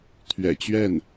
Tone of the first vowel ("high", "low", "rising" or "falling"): low